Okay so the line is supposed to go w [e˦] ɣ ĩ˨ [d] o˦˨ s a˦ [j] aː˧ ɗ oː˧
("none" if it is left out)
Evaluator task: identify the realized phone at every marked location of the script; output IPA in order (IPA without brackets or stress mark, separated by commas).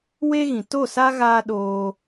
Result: e˦, t, ɣ